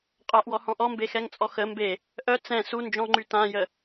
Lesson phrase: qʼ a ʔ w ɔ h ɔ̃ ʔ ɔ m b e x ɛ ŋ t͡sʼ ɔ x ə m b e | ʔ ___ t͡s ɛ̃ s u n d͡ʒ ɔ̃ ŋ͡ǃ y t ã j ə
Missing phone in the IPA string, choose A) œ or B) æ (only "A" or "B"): A